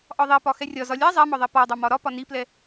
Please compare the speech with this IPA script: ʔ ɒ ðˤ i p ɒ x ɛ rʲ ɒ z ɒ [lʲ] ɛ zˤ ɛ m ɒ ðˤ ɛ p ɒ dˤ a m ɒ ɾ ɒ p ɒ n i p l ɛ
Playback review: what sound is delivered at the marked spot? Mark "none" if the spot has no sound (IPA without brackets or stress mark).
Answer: lʲ